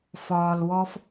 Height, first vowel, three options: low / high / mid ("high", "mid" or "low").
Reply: low